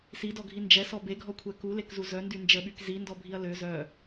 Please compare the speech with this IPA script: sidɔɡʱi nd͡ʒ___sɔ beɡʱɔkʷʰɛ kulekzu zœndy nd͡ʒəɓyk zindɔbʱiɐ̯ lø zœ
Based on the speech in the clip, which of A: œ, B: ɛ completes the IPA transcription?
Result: B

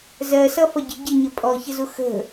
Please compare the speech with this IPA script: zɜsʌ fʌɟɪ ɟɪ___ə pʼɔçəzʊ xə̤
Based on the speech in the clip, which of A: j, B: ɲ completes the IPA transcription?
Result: B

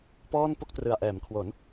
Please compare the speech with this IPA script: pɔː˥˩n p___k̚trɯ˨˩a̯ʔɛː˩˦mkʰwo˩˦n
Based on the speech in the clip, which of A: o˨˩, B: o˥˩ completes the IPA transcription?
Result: B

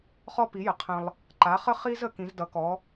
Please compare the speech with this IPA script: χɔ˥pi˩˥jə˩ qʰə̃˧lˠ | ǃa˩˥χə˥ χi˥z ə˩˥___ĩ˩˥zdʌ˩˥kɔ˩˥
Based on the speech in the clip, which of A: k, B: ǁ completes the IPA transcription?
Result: A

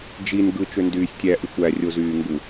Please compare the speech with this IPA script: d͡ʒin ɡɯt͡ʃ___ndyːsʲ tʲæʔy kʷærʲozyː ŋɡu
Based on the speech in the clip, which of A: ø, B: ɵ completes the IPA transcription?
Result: A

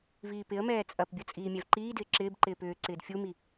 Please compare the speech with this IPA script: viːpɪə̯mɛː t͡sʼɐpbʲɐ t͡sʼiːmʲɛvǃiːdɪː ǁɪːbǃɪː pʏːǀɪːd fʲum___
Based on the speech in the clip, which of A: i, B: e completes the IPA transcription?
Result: A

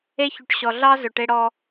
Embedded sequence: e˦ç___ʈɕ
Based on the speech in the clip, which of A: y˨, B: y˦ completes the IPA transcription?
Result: A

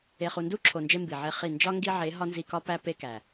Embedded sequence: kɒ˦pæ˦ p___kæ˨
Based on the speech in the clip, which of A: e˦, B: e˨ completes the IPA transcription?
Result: A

